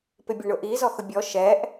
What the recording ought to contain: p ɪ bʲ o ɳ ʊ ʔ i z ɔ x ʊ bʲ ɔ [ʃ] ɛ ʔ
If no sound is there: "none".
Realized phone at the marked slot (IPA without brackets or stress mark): ʃ